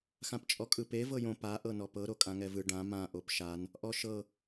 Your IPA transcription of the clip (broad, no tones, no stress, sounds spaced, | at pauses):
x ã p t͡ʃʼ ɔ kʼ ɯ p e v ɤ j õ p a ʔ ɤ n ɔ p ɤ ɾ o kʼ ã ŋ ɛ v ɯ ɖ ã m ã ʔ o p ʃ a n | ʔ ɔ ʃ ɤ